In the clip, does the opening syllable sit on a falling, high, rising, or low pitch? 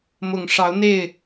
low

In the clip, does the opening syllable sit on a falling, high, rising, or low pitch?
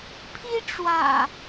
high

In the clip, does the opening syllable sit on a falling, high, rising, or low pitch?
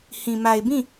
low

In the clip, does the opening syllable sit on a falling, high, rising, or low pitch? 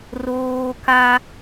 high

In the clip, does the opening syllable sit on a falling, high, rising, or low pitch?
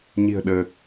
low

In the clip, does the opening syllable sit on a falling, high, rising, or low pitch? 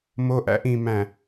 high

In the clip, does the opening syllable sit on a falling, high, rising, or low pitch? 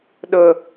low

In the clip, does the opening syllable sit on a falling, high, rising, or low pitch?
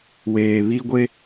low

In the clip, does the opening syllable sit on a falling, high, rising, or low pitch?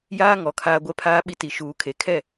high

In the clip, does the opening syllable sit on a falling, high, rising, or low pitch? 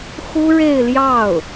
high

